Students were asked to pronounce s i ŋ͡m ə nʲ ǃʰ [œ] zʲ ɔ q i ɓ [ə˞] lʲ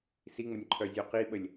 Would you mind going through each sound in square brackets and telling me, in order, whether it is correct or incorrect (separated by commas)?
correct, incorrect